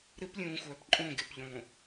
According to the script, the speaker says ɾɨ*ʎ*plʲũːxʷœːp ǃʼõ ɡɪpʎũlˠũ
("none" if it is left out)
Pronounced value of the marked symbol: none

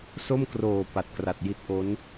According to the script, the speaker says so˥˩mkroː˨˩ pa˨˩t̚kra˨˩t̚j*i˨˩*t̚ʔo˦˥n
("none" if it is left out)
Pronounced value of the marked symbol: i˦˥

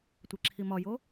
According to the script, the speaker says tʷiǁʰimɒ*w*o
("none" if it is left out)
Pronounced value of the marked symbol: j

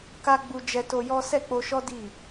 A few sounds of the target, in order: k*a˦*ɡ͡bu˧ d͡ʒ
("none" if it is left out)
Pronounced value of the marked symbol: a˦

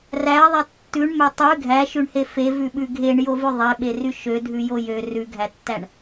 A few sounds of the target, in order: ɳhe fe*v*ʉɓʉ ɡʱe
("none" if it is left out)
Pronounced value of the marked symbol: v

